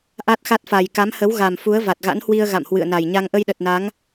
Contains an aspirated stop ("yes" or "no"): no